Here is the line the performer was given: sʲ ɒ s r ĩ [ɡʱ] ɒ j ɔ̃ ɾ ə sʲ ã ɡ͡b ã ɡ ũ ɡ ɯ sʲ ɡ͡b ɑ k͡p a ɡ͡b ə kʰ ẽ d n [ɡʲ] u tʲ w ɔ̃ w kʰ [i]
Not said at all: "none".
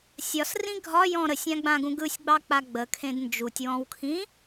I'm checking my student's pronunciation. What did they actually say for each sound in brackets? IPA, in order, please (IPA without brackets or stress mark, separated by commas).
ɡʱ, d͡ʒ, ĩ